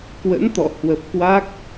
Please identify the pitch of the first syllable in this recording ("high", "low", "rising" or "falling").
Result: rising